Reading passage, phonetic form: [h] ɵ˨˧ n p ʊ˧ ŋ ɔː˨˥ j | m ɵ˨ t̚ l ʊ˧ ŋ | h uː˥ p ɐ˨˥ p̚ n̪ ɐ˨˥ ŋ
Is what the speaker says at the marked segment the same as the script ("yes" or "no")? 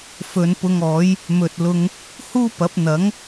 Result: no